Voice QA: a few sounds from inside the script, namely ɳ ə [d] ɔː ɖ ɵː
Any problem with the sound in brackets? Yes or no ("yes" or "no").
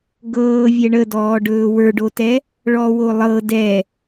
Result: no